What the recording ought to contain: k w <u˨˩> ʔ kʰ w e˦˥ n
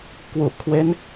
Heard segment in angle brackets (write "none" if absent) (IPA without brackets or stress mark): u˨˩